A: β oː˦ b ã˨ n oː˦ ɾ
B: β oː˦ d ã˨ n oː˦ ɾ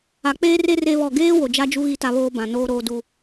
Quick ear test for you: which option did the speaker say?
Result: A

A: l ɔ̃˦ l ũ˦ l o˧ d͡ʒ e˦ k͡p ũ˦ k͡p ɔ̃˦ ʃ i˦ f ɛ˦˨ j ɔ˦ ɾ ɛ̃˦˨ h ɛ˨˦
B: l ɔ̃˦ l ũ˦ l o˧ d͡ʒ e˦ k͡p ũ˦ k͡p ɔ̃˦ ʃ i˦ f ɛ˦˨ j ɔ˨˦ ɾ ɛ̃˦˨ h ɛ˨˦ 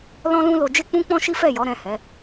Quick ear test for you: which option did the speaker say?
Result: B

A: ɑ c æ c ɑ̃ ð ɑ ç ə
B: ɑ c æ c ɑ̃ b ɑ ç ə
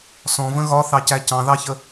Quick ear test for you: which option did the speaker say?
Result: A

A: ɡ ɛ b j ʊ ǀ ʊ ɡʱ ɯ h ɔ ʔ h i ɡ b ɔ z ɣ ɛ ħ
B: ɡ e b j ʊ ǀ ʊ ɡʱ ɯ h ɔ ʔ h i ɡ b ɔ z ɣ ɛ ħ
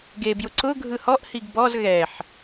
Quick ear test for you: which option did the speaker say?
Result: B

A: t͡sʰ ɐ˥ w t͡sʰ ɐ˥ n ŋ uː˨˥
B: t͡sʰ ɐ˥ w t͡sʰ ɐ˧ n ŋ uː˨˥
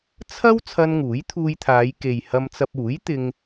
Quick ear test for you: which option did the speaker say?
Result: B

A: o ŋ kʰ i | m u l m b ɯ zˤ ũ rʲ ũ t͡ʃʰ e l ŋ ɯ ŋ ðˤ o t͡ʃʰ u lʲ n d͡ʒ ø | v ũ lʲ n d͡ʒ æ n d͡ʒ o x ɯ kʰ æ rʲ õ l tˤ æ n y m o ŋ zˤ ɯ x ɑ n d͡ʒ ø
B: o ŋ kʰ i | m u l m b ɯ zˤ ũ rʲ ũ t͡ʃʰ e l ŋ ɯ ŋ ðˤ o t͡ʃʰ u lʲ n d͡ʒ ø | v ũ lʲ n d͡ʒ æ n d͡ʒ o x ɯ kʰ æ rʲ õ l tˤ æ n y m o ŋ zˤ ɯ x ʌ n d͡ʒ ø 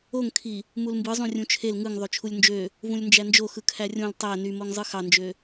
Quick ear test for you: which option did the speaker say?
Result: A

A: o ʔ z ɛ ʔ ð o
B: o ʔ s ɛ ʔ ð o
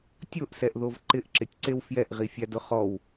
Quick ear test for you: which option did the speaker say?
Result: B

